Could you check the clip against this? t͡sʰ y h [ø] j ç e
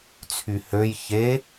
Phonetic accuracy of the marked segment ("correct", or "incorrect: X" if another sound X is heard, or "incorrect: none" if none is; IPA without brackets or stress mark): correct